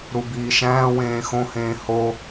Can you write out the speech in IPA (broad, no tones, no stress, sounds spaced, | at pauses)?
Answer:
ɾ u b iː ʃ æ̃ː w ẽː x õ h ẽː h o